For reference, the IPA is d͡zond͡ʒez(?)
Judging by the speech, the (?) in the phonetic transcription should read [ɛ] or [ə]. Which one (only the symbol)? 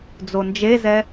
ɛ